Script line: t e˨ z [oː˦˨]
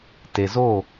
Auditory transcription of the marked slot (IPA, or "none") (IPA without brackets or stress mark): oː˦˨